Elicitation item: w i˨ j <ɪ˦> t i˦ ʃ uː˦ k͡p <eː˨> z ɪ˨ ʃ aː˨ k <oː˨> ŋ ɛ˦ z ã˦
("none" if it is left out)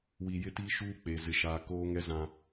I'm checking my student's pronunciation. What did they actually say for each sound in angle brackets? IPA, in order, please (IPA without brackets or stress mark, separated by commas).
ɪ˦, eː˨, oː˦